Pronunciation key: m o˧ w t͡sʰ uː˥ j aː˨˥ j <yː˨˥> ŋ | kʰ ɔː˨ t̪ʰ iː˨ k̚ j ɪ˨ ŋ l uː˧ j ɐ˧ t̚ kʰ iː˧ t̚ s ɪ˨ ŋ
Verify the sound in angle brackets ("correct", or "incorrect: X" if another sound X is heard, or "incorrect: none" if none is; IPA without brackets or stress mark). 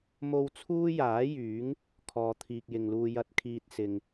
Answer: correct